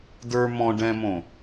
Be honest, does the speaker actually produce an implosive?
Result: no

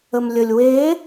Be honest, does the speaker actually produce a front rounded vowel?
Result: no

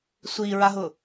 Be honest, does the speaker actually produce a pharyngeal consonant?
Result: no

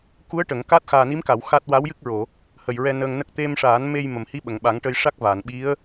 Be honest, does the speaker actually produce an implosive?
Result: yes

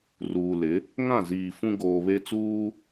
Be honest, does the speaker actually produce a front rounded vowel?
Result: no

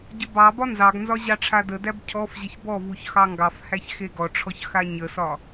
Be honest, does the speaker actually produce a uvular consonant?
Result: no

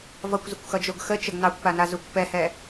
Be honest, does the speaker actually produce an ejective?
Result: no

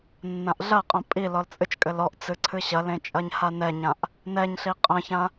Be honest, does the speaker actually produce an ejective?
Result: yes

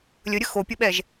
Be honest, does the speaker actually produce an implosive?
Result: yes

